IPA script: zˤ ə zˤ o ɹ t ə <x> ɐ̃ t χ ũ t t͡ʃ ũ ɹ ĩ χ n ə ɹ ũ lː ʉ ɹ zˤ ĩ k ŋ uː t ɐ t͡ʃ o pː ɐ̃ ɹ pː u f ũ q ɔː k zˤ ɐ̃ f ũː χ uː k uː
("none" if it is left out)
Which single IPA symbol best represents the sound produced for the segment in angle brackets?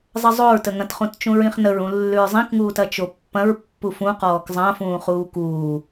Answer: ŋ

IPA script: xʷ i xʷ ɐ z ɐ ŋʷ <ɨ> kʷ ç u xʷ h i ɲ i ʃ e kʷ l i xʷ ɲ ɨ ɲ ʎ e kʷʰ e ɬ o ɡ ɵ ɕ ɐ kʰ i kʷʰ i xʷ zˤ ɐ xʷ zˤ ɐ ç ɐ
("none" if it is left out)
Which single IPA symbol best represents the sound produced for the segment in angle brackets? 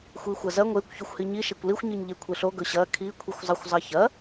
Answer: e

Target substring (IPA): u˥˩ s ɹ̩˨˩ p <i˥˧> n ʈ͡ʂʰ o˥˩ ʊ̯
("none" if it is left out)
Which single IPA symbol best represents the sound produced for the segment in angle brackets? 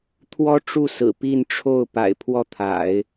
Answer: i˥˧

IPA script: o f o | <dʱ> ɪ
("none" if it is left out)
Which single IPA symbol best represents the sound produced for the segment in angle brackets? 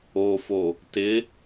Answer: t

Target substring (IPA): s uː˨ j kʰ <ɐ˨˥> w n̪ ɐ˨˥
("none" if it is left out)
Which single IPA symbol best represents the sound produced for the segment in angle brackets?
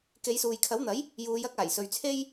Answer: ɐ˨˥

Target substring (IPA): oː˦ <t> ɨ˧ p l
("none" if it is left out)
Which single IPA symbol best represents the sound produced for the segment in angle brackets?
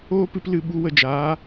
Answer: p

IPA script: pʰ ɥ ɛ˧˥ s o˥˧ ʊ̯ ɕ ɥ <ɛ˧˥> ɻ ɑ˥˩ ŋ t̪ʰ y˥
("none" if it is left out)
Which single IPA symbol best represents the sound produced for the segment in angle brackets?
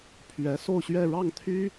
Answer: ɛ˥˧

